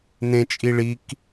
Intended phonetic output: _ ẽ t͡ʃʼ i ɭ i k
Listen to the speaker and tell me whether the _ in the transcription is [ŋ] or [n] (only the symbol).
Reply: n